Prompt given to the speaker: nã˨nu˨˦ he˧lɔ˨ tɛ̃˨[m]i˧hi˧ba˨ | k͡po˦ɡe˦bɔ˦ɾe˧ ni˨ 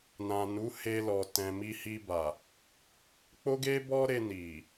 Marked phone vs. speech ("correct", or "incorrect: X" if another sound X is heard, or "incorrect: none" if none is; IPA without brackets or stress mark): correct